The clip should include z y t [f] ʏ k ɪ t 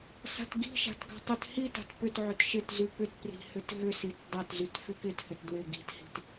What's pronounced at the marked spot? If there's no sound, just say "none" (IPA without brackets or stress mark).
f